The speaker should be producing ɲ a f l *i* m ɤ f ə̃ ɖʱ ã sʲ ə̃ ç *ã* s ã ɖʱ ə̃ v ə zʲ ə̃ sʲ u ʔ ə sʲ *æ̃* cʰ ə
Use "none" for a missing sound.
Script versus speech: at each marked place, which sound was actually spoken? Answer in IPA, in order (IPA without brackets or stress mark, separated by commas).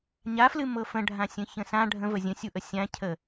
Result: ɨ, ə̃, ã